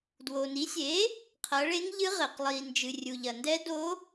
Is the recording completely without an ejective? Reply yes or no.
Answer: yes